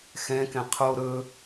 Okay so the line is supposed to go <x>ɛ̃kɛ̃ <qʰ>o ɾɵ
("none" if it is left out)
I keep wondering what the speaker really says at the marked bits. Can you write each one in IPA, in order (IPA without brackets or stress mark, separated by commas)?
x, qʰ